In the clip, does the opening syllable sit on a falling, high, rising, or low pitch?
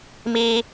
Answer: high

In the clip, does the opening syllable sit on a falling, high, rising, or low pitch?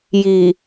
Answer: low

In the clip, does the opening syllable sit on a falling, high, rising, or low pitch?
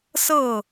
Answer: falling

